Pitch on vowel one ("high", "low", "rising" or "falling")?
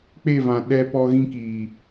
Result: falling